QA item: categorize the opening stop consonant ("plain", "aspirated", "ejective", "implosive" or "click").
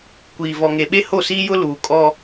plain